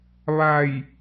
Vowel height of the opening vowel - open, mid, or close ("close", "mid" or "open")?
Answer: open